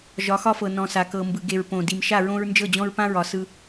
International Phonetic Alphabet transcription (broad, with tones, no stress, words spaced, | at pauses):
ʒɒ˨˦xɒ˦fɤ˨ nɔ̃˨sa˨kɤ˨ mbɯ˨ɡe˨ɹ põ˨ di˨mʃa˦˨ɹõ˦ɹ nd͡ʒɤ˦˨d͡ʑɔ̃˦ɹpã˦ɹɒ˨˦ sɯ˦